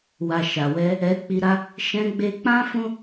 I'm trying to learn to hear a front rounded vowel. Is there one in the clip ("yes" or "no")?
no